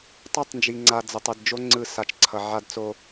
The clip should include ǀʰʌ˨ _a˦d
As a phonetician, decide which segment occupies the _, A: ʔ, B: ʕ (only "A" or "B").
B